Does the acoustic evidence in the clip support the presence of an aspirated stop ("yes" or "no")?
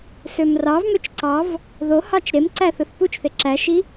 no